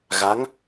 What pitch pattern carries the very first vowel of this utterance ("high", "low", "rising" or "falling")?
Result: rising